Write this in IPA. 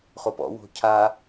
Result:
χopɔ̰ wo̤ cʰa

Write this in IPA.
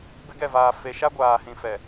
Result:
bɪ˦ɡɛ˦˨vaː˨ fe˨ʃa˦ ɡʷaː˨ hĩ˨fɛ˨

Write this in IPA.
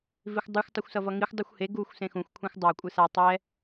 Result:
vixʷdˤɯxʷ tˤuxʷsʌvʌŋixʷ dˤɯxʷhe ɡuxʷ sẽxũxʷ kʷʰẽxʷdˤa kʷʼɯsa tˤɛ

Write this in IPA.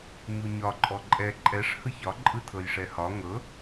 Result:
ɲuɲɒ ǃʼɔǃʼɛ ǃʼɛʂ hɯçɒ ǃʼɯtʰɤjʂɛhɒ ŋɤ

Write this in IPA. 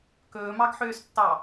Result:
kɵːmɑɡħøːstːɑ

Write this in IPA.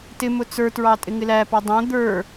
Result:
tɪmʊ t͡sə˞tɹɑ tʼɪŋɪlæpɑ dˤæ̃ d̪ə˞

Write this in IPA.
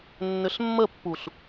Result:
nːʏɬmːəpːuɬ

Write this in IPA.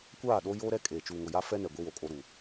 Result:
kʷaː˦˨ɗo˦ joː˦ɾɛ˦ kʼeː˨t͡ʃuː˨ŋʊ˨ja˦ fɛ˦nɛ˨ ɡʷi˦wo˨kʼo˦ɾuː˨

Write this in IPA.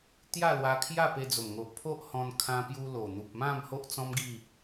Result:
t̪ja˥˧lwa˧ kʰja˥˧pe˧d͡zo˨˩mŋo˨ʔ pʰo˦ʔhɔ̃˧n kʰã˧pju˧ lo˨˩n̪u˨p̚mã˥˧m ho˦ʔt͡sɔ̃˦mɡi˥˧

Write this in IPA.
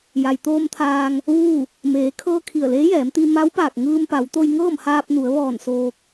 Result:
ja˩jt̪oː˧mt̪ʰaː˧ŋ | ʋuː˥˨ | meː˩˧kʰɤː˧ kʰi˧˩ə̯leː˧˥jɛː˩˧mt̪i˧ ma˧˥wpaː˧˩k̚ ŋɯː˧mpa˩˧wt̪o˧j ŋɤː˥˨mhaː˧p̚nu˩˧ə̯ ʋɔː˧˩n soː˧k̚

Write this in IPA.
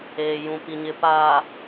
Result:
eː˨jũ˨ pi˨ɲɪ˨ paː˨

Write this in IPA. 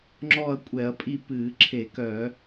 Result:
ŋ͡ǁɔː˥˨ɐ̯kʷʼɛ˧˩˧ɐ̯pʼi˥˨ pɨː˧˩˧ǁʰe˧˩˧kœ˧˩˧

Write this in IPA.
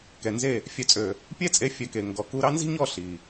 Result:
kɛ˨nze˦˨ | fʲœ˧t͡sʼø˨ | pʲɛ˦ t͡sʼe˦ fʲœ˧ke˨ ŋɡɔ˨ ku˧ɾɑ˦nzi̤˦ɲɔ˦˨ ɬi˨

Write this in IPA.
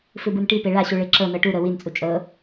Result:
fɯbɯnʈi peɭaɕu ɭeǁɤnɤ ʈuɾɤ wint͡sʼu t͡ʃʼɤ

